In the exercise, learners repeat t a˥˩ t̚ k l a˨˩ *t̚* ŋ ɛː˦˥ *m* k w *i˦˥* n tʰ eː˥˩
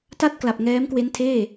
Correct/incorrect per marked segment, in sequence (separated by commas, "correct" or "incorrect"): incorrect, correct, incorrect